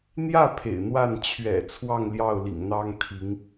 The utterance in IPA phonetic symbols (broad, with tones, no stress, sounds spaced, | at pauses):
n̪ j ä˥˩ pʰ ḛ˨˩ ɪ̯ n̪ w a˥˩ n t͡ɕʰ ɥ ɛ̰˨˩ t͡sʰ w ɑ˥˧ ŋ l j ɑ˥˩ ʊ̯ l ḭ˨˩ ŋ n̪ ɑ˥ ŋ t̪ʰ i˧˥ ŋ